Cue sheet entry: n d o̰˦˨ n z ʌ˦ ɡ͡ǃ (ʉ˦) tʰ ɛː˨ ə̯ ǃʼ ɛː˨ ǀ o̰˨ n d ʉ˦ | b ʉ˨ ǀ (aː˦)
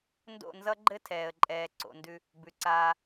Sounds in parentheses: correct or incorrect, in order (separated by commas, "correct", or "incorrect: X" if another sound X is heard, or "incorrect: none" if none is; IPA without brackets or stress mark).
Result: incorrect: ɘ˦, correct